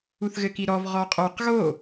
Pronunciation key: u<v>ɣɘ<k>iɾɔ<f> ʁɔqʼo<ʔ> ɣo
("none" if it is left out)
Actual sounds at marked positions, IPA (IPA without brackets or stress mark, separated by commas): θ, k, v, q